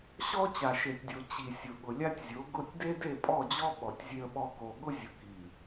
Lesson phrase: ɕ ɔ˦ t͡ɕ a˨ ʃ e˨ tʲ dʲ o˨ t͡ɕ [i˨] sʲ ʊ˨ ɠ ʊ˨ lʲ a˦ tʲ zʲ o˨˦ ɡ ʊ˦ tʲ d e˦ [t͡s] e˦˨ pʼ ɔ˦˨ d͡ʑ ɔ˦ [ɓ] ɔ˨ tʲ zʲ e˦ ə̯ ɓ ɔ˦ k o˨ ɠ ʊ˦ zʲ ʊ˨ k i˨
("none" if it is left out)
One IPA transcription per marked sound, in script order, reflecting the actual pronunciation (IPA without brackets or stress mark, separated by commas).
i˨, d, ɓ